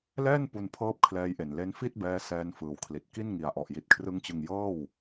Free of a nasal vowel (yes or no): yes